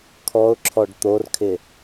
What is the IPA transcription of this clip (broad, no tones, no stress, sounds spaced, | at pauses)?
kʰ ɔ ʊ̯ ǁʰ ɔ ɖ t̪ o r kʰ ɪ